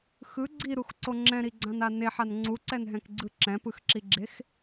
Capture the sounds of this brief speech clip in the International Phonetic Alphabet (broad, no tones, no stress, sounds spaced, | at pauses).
x ɯ ɡ͡ǀ i ɾ u x ǀ o ŋ͡ǁ ɛ̃ ɾ i ɡ͡ǀ ã n a n e ħ a n ŋ͡ǀ u ǀ ɛ n ɦ ɛ̃ k ɡ͡ǀ ɯ ǁ ɛ̃ p ɯ x ǁ i ɡ͡ǁ e x